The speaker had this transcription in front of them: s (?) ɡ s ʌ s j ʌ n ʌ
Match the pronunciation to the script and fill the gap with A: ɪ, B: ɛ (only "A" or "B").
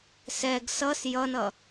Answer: B